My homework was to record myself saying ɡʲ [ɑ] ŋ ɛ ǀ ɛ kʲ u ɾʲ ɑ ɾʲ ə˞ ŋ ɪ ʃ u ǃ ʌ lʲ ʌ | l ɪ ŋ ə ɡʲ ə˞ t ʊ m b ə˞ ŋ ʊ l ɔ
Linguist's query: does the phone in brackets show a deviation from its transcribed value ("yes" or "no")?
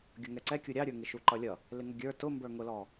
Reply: yes